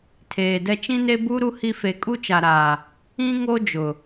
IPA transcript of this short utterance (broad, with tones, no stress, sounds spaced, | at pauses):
tʰ eː˨ d ɛ˦ t͡ʃ ĩ˦ n e˦ b u˦ ɾ u˦ h i˦ f e˨ kʼ u˦ t͡ʃ a˨ ɾ aː˨ | ĩ˦ ŋ o˦ d͡ʒ ʊ˨